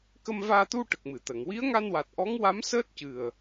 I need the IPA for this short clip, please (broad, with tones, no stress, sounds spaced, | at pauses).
k ə˧ m v aː˧ t̪ u˧ ʈ ə˨˩ k̚ m ɨ˨˩˨ t̪ ə˨˩˨ ŋ w i˧˥ ə̯ ŋ a˧ n w a˨˩ t̚ ʔ ɔ˧˥ ŋ w a˧˥ m s əː˦˥ t̚ c ɨ˨˩ ə̯